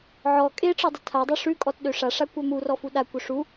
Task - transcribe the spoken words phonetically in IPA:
ʕ ɔ kʼ e ʈ͡ʂ ɔ dˤ ə tʰ a dˤ ø ʂ ʉ kʼ ɔ t ɗ ø ʂ a ʂ a kʷ œ m u r ɔ f u ɗ a kʷ œ ʂ u

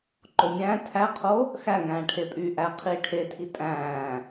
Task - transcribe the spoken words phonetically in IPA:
ǃ o mʲ æ̃ː tʰ æ qʰ o | x æ ŋ æ̃ː ʈʰ e pʼ yː ʔ æ qʰ iː ʈʰ e tʰ i tʼ æ̃ː

